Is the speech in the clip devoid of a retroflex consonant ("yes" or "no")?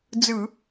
yes